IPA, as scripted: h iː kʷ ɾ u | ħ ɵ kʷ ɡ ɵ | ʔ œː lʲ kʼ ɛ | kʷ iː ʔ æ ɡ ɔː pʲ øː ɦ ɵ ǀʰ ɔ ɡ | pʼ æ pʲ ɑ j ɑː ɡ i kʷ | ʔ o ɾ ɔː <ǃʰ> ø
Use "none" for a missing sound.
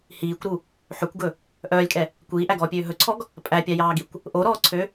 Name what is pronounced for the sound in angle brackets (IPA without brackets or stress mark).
ǀʰ